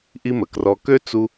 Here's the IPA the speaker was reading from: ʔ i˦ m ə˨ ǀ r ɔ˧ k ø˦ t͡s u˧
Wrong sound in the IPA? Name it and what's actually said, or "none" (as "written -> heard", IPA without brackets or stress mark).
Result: ǀ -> k